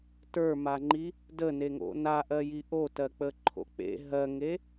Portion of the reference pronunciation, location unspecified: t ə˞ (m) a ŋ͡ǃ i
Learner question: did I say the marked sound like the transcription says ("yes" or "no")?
yes